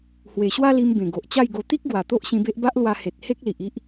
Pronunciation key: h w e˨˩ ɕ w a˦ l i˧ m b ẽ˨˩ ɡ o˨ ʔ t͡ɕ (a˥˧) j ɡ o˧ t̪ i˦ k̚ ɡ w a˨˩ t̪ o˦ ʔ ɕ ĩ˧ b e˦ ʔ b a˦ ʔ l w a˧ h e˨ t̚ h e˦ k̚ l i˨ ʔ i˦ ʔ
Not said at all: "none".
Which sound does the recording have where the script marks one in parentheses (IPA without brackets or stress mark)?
a˥˧